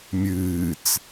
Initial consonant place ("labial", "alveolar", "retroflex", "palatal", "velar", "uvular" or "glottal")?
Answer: labial